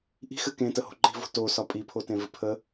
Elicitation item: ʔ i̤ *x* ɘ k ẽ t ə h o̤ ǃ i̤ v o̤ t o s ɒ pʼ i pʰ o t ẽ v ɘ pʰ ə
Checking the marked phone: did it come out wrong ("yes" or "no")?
no